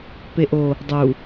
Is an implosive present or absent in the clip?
absent